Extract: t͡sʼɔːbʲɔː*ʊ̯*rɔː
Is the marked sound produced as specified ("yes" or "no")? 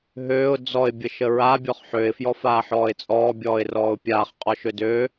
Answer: no